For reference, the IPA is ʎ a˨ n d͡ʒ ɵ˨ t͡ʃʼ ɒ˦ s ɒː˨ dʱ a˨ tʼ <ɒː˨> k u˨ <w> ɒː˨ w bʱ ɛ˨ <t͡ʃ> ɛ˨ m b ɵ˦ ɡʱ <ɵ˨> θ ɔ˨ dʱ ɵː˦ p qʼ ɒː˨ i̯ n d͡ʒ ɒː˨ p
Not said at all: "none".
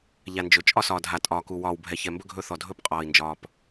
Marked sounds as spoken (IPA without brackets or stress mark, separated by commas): ɒː˨, w, ç, ɵ˦